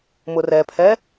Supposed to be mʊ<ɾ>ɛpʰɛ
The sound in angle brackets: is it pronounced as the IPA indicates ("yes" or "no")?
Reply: no